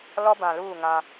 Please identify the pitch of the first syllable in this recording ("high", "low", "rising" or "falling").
high